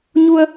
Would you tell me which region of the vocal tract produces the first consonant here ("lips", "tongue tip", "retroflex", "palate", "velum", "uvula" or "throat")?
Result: palate